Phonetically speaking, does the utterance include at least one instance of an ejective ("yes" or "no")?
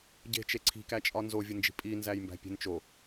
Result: yes